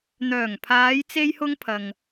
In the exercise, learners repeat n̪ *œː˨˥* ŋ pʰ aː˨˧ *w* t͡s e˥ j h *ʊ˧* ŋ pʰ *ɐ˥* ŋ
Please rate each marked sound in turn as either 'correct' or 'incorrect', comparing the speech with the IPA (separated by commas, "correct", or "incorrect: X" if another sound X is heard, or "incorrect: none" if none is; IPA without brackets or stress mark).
incorrect: œː˨˩, incorrect: j, incorrect: ʊ˥, incorrect: ɐ˨